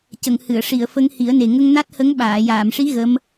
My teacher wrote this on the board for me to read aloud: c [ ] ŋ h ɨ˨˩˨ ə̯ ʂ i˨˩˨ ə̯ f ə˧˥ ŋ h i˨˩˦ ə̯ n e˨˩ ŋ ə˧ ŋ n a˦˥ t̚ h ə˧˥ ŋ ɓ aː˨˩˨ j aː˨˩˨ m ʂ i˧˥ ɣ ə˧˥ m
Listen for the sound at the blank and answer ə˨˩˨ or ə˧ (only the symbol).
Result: ə˨˩˨